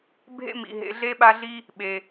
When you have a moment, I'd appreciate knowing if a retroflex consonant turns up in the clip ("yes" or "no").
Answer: no